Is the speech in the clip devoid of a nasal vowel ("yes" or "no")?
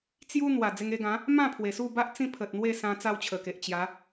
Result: no